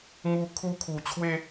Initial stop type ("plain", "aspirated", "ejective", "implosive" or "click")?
aspirated